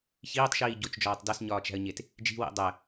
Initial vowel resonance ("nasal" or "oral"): oral